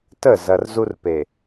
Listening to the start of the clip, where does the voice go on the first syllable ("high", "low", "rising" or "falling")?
falling